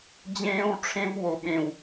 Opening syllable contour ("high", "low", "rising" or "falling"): high